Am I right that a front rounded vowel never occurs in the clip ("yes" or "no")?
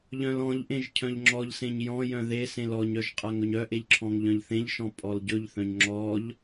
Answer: no